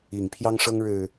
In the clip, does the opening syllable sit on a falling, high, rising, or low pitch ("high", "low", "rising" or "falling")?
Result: low